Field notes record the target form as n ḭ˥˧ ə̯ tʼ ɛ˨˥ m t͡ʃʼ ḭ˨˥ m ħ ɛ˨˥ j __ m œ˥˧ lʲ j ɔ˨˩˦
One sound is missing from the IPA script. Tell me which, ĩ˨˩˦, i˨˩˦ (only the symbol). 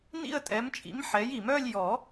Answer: i˨˩˦